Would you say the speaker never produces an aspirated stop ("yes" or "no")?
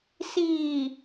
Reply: yes